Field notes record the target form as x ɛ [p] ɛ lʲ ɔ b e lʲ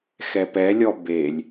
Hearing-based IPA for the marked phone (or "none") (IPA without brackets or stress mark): p